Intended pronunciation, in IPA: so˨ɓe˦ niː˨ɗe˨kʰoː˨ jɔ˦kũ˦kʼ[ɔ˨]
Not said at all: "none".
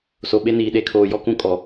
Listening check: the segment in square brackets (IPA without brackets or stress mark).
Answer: ɔ˨